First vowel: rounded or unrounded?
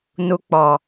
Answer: rounded